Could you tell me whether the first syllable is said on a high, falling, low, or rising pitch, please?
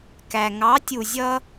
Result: low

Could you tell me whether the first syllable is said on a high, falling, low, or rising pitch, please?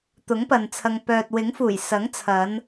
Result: rising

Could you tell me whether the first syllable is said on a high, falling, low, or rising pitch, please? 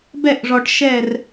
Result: falling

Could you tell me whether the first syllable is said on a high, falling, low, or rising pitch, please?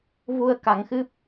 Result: low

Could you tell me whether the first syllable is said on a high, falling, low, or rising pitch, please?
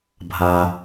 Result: low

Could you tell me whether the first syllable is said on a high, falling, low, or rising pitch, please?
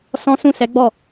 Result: high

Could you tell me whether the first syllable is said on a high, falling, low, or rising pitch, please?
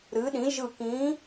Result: rising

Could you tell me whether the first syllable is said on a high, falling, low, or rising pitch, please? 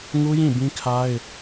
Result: high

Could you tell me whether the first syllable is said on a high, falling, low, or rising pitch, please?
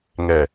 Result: low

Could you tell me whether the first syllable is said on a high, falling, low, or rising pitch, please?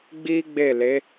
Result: high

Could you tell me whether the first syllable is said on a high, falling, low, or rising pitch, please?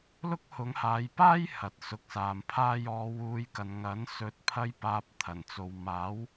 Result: high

